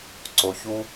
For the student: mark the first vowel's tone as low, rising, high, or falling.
low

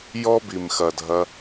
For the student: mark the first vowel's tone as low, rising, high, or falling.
high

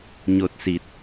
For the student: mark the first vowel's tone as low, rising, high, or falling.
low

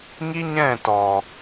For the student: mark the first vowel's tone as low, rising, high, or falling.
high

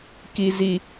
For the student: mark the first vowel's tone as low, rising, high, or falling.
low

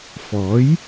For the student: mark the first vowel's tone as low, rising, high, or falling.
rising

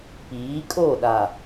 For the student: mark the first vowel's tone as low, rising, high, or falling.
rising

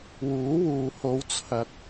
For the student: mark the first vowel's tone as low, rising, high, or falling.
rising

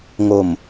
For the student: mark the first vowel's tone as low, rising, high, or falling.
low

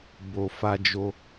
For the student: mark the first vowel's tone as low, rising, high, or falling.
low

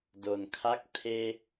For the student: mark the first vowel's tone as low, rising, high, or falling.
low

